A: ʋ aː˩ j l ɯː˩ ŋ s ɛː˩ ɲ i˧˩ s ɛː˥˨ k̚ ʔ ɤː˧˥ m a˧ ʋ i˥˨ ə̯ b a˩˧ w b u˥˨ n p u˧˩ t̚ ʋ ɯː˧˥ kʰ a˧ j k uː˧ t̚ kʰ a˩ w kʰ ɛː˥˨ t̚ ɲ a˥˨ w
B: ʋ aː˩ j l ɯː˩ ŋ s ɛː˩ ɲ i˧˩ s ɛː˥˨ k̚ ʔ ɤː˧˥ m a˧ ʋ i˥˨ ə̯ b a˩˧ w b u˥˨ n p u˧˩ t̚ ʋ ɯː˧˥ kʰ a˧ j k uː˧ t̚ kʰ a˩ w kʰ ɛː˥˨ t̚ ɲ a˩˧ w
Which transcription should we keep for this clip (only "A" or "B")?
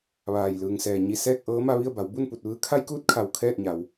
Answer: B